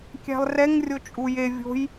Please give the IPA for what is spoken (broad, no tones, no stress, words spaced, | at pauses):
kʲæ̤lˠrɛŋ rʲot͡ʃʼuje vʲo̤j